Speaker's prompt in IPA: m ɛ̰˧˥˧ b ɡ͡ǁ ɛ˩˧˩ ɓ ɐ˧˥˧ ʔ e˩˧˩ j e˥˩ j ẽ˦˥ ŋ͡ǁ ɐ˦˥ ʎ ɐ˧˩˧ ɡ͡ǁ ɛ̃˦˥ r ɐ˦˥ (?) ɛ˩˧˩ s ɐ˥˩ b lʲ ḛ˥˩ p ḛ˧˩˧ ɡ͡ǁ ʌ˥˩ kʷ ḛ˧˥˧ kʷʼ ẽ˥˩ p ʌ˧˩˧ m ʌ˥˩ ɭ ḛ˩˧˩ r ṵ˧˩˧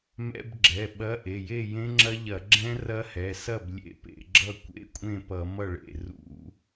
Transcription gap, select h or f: h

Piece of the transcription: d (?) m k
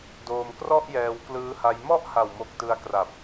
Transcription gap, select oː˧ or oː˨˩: oː˧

